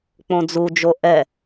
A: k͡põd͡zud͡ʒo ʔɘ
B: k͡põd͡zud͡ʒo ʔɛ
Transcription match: B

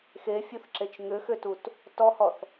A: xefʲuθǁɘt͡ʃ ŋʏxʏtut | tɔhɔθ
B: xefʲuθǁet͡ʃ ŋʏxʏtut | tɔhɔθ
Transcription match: B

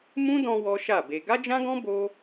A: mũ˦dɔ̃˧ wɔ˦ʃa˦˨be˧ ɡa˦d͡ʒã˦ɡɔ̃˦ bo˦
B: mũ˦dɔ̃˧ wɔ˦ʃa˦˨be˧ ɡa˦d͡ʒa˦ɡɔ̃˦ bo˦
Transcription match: A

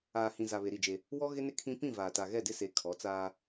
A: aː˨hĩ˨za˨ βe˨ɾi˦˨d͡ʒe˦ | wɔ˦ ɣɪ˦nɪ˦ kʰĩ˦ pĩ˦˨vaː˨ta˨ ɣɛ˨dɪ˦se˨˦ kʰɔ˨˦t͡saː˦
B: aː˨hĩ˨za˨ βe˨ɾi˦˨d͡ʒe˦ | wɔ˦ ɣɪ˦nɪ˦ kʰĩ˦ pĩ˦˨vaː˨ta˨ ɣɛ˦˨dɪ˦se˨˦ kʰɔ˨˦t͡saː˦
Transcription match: B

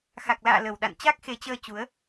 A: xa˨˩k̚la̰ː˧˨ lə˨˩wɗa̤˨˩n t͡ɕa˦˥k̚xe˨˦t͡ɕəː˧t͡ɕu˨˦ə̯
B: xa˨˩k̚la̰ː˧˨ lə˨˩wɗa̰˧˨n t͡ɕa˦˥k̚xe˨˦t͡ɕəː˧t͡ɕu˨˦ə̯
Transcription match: B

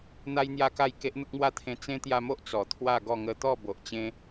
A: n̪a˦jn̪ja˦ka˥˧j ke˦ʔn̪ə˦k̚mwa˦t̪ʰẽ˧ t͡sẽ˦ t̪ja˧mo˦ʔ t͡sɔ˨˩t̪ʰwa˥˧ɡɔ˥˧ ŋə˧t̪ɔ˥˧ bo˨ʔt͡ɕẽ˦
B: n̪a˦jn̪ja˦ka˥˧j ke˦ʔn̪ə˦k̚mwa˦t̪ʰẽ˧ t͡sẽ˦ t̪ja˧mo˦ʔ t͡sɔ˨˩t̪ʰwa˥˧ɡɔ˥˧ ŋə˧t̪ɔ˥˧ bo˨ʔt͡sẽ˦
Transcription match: A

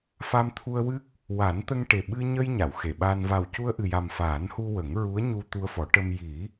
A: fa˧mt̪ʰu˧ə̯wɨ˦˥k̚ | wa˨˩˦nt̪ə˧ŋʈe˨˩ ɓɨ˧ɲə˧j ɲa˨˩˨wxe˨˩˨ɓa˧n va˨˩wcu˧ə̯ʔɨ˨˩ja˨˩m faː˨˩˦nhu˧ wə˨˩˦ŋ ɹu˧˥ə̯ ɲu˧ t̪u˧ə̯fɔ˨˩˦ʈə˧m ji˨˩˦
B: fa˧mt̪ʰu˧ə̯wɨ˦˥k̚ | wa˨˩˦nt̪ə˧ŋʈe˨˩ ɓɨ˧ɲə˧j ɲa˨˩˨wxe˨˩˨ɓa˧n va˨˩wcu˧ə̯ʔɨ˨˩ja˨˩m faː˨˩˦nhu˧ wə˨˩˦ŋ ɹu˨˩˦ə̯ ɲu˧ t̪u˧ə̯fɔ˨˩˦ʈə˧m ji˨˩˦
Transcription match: A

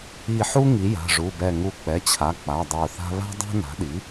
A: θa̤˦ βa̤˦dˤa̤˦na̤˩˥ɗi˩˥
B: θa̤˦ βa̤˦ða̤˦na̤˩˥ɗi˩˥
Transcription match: A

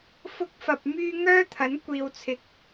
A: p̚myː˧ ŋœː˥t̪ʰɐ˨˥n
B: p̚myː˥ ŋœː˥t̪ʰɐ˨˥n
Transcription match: B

